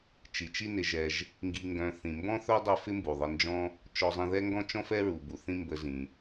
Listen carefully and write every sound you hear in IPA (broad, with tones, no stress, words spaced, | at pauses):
t͡ʃi˩t͡ʃi˦nɪ˨ʒɛ˨ʒ | ŋɡi˨ŋɡœ̃˨ θĩ˩mbɔ̃˥θœ˥ dˤɛ˦fɪ˥mbu˩ ðˤə˨nd͡ʒɔ̃˦ | t͡ʃɔ˨zˤĩ˨ðɛ˦ŋɡɔ̃˦ t͡ʃɔ̃˥fɛ˥ɹu˩ bu˩θĩ˦ mbə˨zĩ˩